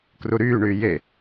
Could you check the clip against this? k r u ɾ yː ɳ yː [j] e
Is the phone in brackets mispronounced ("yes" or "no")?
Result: no